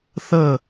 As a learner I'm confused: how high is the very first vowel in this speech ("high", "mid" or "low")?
mid